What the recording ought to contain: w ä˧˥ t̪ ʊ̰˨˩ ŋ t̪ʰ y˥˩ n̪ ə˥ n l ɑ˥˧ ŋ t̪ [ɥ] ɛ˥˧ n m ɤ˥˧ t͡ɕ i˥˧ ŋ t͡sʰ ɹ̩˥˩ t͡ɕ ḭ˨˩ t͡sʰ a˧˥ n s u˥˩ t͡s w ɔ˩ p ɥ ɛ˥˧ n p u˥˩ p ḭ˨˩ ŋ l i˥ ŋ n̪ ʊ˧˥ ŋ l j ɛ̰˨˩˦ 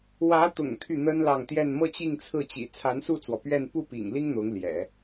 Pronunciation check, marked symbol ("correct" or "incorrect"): incorrect